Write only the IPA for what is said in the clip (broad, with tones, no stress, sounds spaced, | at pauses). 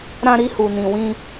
ɾ ã˧ ɾ i˧ h u˨ n ĩ˨ w ĩ˧